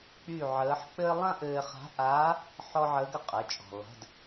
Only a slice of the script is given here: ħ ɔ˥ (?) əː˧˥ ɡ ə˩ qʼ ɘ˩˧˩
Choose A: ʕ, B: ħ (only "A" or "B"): A